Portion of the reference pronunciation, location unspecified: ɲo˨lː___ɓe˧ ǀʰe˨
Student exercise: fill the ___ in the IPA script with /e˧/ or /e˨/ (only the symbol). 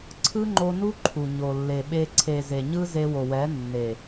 e˨